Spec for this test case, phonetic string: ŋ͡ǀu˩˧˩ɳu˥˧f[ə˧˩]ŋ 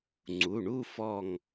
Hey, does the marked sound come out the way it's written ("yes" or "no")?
no